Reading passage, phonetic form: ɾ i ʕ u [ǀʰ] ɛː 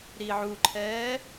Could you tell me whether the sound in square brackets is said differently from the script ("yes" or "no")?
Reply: yes